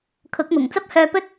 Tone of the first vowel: rising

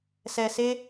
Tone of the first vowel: low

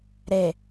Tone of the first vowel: low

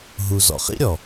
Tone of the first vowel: low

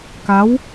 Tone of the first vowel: rising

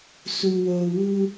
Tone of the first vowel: low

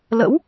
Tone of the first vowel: rising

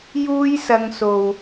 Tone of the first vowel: high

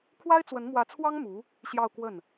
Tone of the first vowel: high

